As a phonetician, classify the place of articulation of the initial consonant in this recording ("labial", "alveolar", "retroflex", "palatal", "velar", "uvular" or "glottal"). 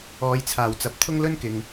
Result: palatal